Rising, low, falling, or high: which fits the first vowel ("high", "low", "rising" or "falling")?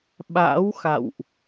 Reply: rising